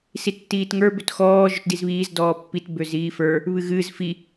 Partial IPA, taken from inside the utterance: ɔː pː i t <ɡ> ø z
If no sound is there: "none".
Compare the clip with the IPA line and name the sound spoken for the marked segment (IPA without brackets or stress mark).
b